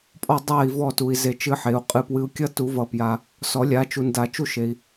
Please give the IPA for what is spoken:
pʼ ɔ˦˨ dˤ a˦˨ i̯ v ɔ˦˨ t u˨ i̯ z e˦˨ t͡ʃ ɨ˦ ħ e˨˦ u̯ qʼ ɨ˨ p w ɨ˨˦ u̯ kʲ ʌ˦ t u˨˩˦ v ʌ˨˩˦ p j a˨ | s ɔ˨˩˦ lʲ a˨˦ t͡ʃ u˨ n d a˨ t͡ʃ u˦ ʃ e˨ i̯

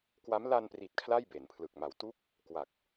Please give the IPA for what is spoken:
k w a˦˥ m l a˧ n p r i˨˩ t̚ kʰ l a˥˩ j b e˩˦ n pʰ l ɯ˨˩ k̚ m a˨˩ w t u˥˩ k̚ | k w a˨˩ k̚

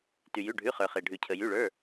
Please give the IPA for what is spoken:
t y˩ j ʉ˩˧˩ ɖʱ ʉ˩˧˩ χ ə˞˩ χ e˩ ɖʱ ʉ˩ cʰ ə˩ j y˩˧˩ ɭ ə˞˩˧˩

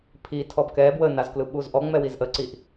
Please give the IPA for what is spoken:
pʰ i tʰ ɔ b k ɛ b w ə n a z k l ɯ ɓ u z ʔ ɔ ŋ͡m ɛ w i z ʔ ə ǀ i ʔ

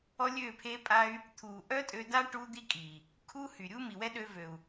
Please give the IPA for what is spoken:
ɔ˦ lʲ øː˦˨ pʰ e˦ pʼ a˦ y̯ | t̪ʰ uː˨ ʔ œ˦ tʼ ø˧ d a˦ ʈ uː˦ d̪ i˦ kʼ iː˨ | kʰ u˦ h y˨ ɾʲ u˦ m i˨ w ɛ˦ ɗ øː˧ v ø˨ u̯

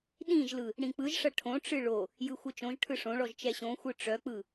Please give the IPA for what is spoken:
ɗ ĩ ʒ l ɯ | ɽ ĩ k͡p ɯ ʒ ʂ ɐ ʈʰ õ ʈ͡ʂ ɨ ɭ o | j ɯ xʷ ɨ t͡ʃ õ ʒ ʈʰ ɯ ʂ õ ɭ ɔ ʒ t͡ʃ ɛ ɕ õ xʷ ɯ ʈ͡ʂ œ k͡p ɯ

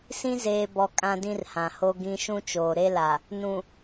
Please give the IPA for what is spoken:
s ĩ˦ z eː˨ b ɔ˨ kʼ ã˦ d ĩ˦ r h ã˨ h o˦ ɡ ĩ˦ ʃ ũ˦ t͡ʃ oː˨ ɾ e˦ l a˨ | n ũ˨

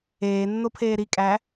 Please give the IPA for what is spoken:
eː nː o pʰ eː ɾ i kʼ æ

